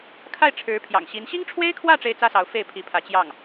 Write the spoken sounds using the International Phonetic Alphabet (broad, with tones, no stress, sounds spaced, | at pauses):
kʰ a˥˩ ɪ̯ ʈ͡ʂʰ ɻ̩˧˥ pʰ j ɑ̰˨˩ ŋ ɕ i˧˥ n ɕ i˥ ŋ ʈ͡ʂʰ w e˥ ɪ̯ kʰ w ä˥˩ ʈ͡ʂ e˥ ɪ̯ t͡s ä˥ s ɑ˧˥ ʊ̯ f e˥˩ ɪ̯ pʰ i˧˥ pʰ ä˧˥ t͡ɕ j ɑ˥˩ ŋ